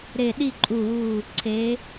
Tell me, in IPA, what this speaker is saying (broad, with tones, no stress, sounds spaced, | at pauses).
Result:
ɾ e˧˩ ɗ i˥˧ ǃʼ u˧˩ w u˧˩ | ǀʰ e˩˧